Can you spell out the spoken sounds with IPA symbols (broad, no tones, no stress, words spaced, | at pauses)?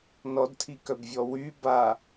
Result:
nɔdtʰikœbvʲɔ wy ba